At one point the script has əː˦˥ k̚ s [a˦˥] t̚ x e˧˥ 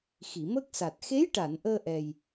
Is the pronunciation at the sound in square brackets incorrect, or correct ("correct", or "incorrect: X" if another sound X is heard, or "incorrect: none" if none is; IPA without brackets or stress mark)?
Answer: incorrect: a˨˩